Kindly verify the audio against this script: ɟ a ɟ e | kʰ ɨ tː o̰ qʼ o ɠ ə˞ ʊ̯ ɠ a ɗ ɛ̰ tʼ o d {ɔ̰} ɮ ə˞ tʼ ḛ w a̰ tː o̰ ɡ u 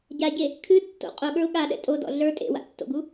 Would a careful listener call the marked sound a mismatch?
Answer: no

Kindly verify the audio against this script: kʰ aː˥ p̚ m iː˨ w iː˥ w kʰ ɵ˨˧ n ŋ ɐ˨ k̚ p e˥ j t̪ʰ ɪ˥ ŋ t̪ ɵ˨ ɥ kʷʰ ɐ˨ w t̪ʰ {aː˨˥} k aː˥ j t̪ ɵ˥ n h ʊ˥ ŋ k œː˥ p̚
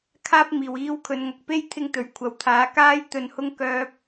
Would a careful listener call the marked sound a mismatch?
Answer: no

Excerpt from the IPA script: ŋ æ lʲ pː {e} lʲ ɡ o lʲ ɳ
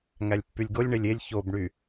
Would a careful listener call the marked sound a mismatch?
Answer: yes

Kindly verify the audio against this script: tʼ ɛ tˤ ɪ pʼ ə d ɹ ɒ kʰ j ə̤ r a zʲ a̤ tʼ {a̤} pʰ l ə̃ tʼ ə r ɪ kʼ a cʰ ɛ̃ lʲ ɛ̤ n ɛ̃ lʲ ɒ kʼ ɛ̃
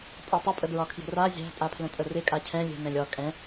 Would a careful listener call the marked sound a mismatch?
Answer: yes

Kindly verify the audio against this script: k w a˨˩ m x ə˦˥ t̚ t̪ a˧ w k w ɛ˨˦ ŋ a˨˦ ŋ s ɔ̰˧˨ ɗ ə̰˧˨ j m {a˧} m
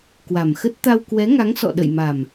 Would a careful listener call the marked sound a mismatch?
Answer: yes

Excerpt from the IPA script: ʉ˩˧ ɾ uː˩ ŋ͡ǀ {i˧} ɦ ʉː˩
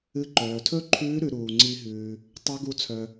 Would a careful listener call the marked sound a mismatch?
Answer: no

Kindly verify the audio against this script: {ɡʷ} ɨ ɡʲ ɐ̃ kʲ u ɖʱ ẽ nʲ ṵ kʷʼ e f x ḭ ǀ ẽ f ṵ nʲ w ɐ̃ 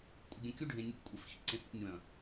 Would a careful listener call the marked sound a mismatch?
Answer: yes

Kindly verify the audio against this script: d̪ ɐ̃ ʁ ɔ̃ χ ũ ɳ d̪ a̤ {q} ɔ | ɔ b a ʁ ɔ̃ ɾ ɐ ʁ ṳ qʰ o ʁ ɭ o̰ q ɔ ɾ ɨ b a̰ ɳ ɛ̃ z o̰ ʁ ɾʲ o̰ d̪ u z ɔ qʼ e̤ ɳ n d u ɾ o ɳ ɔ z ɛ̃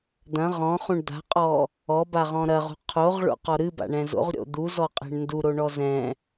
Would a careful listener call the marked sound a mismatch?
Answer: yes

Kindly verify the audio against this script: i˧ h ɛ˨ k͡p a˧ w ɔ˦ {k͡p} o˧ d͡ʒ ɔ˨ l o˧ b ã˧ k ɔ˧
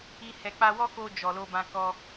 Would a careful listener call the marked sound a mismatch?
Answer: yes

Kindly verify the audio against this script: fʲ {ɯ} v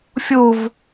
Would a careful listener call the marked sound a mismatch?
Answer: yes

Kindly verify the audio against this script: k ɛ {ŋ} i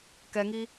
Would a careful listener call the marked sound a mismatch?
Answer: no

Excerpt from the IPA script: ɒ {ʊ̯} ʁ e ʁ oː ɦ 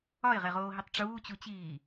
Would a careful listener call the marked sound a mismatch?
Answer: yes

